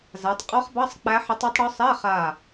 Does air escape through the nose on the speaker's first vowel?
no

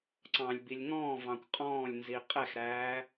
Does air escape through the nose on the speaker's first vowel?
yes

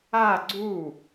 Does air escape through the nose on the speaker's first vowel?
no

